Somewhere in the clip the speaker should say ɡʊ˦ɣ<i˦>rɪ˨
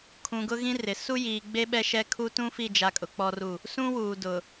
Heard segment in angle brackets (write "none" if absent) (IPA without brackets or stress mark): ĩ˦